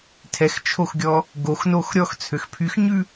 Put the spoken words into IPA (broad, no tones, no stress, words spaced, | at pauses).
tʰɛxt͡ʃʰoxɡʲɔ | ɡoxnox ɾʲɔxt͡sʰøx pʰyxɲʉ